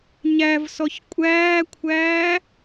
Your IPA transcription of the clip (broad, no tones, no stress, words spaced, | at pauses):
ɲævsɔç kʷʼæːkʷʰæː